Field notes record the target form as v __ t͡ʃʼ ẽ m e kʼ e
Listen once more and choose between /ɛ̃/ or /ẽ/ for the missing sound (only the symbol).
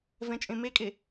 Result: ɛ̃